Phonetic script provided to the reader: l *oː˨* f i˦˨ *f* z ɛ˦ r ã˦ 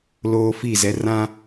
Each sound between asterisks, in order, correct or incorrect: incorrect: oː˦, incorrect: none

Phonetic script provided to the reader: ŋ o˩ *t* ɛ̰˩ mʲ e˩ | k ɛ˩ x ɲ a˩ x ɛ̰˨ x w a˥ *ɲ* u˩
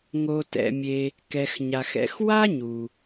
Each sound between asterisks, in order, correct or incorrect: correct, correct

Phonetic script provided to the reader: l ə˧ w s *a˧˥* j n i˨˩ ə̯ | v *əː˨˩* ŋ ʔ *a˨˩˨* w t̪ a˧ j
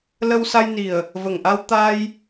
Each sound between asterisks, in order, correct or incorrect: incorrect: a˧, incorrect: ə˨˩, incorrect: a˧

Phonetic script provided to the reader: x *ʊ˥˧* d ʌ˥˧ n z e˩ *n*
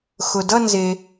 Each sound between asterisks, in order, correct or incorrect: incorrect: ʊ˩, incorrect: none

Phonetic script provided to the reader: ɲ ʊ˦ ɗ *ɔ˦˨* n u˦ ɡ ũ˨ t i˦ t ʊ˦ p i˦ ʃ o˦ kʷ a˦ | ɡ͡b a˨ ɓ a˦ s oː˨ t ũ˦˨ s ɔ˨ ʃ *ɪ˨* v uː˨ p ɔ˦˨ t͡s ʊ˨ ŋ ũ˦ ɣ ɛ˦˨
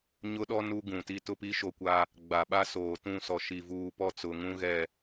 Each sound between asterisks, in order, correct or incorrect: incorrect: ɔ˦, incorrect: i˨

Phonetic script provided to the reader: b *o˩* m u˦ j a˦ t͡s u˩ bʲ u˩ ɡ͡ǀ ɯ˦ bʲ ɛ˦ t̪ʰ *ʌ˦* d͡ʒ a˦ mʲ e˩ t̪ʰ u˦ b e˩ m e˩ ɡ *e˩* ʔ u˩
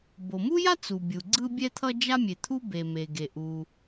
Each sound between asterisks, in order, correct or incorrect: correct, correct, correct

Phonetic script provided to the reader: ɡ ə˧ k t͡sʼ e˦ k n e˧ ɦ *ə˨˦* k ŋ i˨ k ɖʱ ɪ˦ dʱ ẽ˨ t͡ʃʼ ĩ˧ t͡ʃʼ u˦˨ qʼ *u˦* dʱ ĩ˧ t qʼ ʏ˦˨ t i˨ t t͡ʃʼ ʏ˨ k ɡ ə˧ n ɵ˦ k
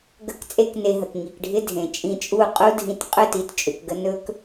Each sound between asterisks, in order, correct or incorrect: incorrect: ə˨, correct

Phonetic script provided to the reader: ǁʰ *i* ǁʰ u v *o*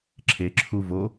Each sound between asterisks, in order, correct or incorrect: incorrect: e, correct

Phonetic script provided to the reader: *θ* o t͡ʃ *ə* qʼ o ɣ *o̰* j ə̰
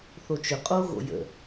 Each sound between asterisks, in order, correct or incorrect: correct, incorrect: ʏ, correct

